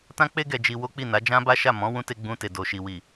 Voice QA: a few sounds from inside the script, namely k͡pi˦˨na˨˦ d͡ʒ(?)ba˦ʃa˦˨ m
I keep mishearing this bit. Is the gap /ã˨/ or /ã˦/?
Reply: ã˦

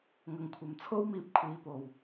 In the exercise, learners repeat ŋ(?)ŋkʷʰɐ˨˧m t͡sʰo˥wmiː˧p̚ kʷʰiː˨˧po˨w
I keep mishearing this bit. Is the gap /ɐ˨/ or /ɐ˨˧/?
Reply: ɐ˨˧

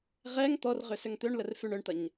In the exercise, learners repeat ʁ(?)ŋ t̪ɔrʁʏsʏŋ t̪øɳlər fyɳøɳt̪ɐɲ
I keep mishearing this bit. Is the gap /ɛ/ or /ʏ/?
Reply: ɛ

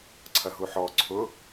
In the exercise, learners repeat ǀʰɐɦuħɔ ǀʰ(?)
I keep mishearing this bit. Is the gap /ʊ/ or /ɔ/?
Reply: ʊ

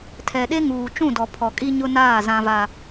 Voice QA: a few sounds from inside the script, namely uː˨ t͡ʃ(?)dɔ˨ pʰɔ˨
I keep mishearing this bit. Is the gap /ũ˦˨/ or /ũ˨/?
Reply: ũ˦˨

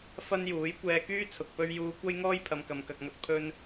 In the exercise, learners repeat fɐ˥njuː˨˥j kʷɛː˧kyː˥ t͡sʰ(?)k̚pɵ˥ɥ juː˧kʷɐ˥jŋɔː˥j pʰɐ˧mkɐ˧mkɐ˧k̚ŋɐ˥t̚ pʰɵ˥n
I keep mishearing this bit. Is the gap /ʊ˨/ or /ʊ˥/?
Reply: ʊ˨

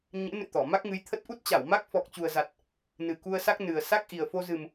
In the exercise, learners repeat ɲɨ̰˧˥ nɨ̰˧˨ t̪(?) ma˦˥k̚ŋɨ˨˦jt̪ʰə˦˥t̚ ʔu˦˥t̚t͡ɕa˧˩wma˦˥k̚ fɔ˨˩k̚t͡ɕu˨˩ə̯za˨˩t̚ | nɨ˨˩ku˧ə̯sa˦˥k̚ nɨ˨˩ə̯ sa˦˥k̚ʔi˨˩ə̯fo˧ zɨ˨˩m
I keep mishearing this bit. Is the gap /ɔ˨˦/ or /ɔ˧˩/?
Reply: ɔ˧˩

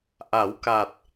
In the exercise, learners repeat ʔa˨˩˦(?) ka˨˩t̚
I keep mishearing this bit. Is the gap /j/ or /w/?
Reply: w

